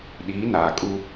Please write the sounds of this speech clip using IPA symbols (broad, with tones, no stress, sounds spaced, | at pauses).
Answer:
ɗ iː˨˦ n aː˨ kʼ u˦